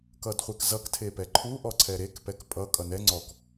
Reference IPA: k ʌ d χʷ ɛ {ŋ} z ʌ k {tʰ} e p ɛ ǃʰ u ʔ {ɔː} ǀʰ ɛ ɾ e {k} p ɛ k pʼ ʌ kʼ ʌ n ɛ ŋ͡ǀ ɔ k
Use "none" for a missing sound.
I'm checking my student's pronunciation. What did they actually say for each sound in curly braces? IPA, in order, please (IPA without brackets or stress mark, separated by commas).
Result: k, tʰ, ɔ, k